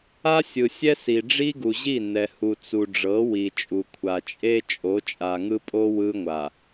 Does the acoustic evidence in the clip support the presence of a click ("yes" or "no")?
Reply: no